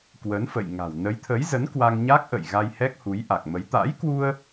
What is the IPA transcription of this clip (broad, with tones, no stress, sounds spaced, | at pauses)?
k w ə˨˦ n f ə̰˧˨ j ŋ a̤˨˩ w n ə˨˦ j t̪ʰ ə˨˦ j z ə˨˦ n k w a˧ ŋ ɲ a˦˥ k̚ ʔ ə̰˧˨ j ɣ a˧ j h ɛ˦˥ k̚ h u˨˦ j ʔ a˨˩ k̚ m ə˨˦ j t̪ a̰˧˥ j k w u˧ ə̯